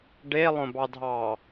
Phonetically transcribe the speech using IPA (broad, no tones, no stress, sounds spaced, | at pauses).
ɖ e lˠ õ b ɑ dʱ ɑ